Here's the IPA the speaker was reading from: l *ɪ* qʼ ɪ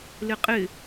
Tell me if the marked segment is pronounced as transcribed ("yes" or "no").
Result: yes